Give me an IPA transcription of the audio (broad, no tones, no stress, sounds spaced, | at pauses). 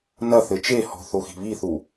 n ɐ θ ɘ t͡ʃ e h ɔ̤ θ o x i̤ β i θ u